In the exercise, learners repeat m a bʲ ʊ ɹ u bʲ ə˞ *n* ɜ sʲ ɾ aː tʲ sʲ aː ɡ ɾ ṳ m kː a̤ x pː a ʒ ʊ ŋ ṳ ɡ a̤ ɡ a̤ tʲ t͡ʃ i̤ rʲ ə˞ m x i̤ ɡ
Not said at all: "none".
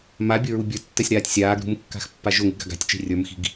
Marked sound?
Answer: tː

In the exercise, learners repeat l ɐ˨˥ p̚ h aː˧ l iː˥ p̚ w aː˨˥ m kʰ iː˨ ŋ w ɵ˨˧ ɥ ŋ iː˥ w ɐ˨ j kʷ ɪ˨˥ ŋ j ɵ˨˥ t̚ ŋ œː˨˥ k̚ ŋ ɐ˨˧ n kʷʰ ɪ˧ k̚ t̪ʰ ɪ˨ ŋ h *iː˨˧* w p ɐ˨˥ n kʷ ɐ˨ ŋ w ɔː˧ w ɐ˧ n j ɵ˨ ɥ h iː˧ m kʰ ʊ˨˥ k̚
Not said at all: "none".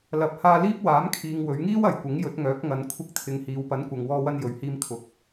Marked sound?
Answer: iː˨˧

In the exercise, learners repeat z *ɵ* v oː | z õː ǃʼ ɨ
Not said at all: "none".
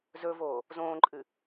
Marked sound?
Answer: ɵ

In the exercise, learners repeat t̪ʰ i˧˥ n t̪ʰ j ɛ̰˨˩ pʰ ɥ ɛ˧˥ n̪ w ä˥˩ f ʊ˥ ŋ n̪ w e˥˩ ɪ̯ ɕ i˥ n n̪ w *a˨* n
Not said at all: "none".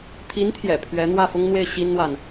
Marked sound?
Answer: a˨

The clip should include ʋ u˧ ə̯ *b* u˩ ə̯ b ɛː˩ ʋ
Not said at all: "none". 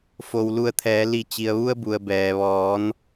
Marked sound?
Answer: b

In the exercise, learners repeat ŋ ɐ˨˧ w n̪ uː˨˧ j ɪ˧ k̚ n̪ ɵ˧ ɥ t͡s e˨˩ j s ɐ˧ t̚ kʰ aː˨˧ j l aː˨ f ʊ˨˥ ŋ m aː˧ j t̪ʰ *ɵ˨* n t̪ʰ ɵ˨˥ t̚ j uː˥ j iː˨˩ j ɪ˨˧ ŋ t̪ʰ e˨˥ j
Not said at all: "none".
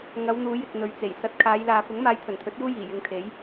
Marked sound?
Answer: ɵ˨˩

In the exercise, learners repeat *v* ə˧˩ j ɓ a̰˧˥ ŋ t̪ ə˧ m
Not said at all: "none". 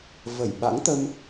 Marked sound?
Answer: v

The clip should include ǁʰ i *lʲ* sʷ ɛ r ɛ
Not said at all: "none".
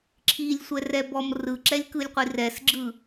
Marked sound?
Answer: lʲ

